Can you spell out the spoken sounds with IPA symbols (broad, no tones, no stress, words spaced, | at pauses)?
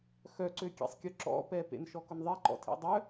xœǀøkʲḛsˤkʲø ǁɔ̰pɛ pḛnʃɔkʊnðˤɛ ǃɔ̰tʰḛdˤœ